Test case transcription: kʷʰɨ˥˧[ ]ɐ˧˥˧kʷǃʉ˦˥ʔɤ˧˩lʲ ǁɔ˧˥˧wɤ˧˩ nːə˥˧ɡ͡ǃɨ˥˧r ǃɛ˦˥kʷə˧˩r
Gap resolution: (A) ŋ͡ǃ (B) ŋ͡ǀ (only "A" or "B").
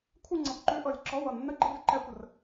B